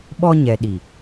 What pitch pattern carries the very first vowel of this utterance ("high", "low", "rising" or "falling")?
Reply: high